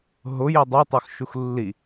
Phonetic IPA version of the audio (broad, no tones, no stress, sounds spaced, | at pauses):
ɦ ʊ j e dˤ o tˤ o x ʃ u x lː i